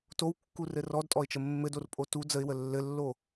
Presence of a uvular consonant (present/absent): absent